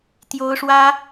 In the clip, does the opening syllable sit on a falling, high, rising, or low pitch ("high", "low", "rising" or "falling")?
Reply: high